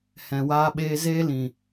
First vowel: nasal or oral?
nasal